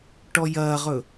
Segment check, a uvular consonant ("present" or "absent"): present